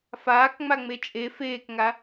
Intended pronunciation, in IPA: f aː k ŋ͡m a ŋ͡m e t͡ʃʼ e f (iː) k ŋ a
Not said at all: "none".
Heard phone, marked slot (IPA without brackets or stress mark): eː